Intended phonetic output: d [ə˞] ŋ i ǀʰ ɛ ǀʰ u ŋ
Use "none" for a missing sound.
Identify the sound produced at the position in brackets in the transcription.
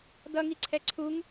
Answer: ʌ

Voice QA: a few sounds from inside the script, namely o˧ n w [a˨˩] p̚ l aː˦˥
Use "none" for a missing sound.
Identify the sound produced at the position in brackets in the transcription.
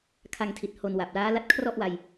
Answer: a˨˩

